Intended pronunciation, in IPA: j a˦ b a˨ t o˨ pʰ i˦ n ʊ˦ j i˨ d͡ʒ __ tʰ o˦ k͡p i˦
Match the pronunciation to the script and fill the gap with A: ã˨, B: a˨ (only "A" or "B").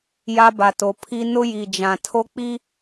A